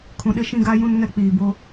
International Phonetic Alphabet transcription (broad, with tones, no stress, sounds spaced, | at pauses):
kʰ ũ˨ ɗ ɪ˦ ʃ ĩ˦ ɡ a˦ j ũ˦ n ŋ ɛ˦ k͡p iː˨ b o˦